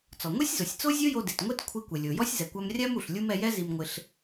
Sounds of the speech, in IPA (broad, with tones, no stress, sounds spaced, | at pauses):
t͡s ɔ˩ ŋʷ ɛ˥ sʲ z o˩ sʲ t͡s o˥ zʲ o˥ j o˧ d e˩ t ŋʷ e˥ t kʷʰ i˧ kʷ e˩ lʲ o˩ j ɔ˥ sʲ z ɛ˩ kʷ a˧ m rʲ a˥ m u˩ ɬ lʲ u˥ m ɛ˧ j ɛ˥ z i˧ m ŋʷ ɪ˧ ɬ